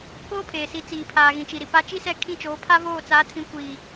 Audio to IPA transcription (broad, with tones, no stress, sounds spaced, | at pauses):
k oː˦ pʰ eː˨ s i˨˦ t͡s iː˨ pʰ aː˨ ɣ ĩ˨ t͡ʃ i˨ ɾ i˨ p a˦ t͡ʃ i˦ s ɛ˦˨ kʰ ĩ˦˨ t͡ʃ oː˨˦ pʰ a˦ v oː˦˨ t͡s aː˨˦ tʰ ĩ˨˦ kʷ iː˨